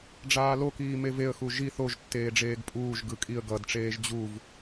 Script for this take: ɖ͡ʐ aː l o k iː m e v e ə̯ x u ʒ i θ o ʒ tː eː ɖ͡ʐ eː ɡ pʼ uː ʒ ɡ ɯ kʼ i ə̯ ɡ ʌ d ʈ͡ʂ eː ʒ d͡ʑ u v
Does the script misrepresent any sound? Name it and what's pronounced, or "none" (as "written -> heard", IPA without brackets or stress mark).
none